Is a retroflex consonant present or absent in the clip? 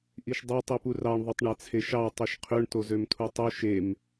present